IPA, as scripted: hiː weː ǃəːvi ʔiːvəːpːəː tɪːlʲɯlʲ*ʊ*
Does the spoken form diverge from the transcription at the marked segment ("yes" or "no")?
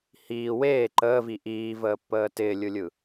yes